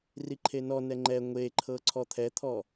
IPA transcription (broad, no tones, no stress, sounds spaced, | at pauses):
r i ǃʰ e n ɔ n ɛ ŋ͡ǃ ɛ ŋʷ e ǃʰ ɤ ǀʰ ɔ t̪ʰ ɛ t̪ʰ ɔ